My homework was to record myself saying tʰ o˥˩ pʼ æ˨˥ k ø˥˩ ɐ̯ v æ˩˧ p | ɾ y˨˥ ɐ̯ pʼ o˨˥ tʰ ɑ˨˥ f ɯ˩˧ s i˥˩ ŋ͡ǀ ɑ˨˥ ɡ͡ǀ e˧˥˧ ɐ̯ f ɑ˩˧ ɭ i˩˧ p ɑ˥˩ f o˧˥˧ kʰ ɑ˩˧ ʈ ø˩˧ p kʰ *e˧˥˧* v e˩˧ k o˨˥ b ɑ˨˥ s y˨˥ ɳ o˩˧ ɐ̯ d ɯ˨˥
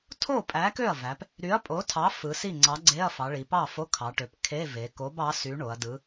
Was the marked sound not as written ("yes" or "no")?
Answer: no